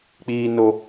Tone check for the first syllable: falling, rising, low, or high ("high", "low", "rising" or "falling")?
low